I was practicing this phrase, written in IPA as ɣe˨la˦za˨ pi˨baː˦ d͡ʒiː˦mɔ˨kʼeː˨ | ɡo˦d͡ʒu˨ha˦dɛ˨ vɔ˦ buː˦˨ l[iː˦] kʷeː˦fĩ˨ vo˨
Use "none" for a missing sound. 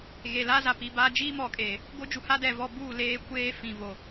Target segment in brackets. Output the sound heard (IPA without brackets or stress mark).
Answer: eː˦